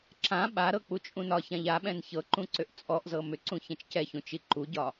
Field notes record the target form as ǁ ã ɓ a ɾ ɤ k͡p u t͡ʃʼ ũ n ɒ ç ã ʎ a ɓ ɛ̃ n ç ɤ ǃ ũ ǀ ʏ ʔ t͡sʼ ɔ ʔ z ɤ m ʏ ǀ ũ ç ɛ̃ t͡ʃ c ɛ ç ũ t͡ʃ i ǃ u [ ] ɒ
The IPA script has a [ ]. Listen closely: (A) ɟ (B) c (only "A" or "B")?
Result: A